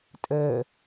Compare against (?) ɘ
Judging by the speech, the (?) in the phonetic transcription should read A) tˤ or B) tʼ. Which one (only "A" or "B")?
B